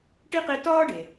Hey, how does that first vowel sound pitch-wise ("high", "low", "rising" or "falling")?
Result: high